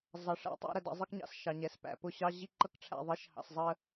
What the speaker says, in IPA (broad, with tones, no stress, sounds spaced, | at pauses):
zˤ ɑ˨ ʂ æ̰˦ tˤ æ̰˦ ɾ ə˨ d ɑ̰˦ zˤ ɪ˦ k ɲ ɑ̰˨ s ʃ ɑ˨ ɲ ɛː˨ s p æ̰˨ p ʊ˦˨ ɕ ɑ˦ ʑ i˦ ǃ ʌ˦ k ʈ͡ʂʰ æ̰˨ ðˤ ɪː˦ ʃ h ɑ̰˨ s zˤ ə˦